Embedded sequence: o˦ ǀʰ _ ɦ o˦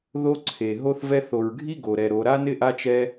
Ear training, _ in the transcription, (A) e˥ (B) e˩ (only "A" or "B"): B